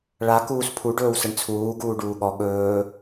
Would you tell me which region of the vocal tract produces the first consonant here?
retroflex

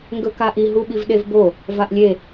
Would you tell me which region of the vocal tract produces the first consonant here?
velum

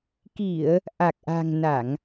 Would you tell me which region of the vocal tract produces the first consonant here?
velum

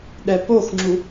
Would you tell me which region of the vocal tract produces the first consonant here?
tongue tip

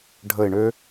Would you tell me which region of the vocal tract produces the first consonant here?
retroflex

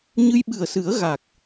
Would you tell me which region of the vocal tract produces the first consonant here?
palate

